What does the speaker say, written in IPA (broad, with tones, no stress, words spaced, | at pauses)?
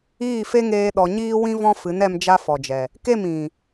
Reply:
iː˦˨fe˦ŋeː˧ ɗɔ˧ ɲiː˧wĩ˧vɔ̃˧ fɨ˨˦nɛ˧m d͡ʒa˦fɔ˨d͡ʒɛ˨ | ke˦˨m ĩ˨